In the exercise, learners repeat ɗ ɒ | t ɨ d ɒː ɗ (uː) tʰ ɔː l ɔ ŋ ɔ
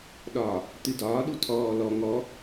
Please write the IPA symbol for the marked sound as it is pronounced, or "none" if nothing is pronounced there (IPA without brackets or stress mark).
u